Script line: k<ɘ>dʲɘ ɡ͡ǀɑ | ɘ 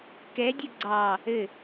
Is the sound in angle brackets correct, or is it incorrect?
incorrect